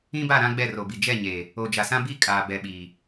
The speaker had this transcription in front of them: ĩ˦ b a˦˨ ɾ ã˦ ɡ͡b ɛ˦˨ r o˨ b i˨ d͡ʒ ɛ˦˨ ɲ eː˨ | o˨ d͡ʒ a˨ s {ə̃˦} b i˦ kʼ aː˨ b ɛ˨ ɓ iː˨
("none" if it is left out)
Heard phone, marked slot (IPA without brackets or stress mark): ã˦